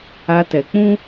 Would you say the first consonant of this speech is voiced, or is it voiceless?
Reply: voiceless